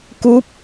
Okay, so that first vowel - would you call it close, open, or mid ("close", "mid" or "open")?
close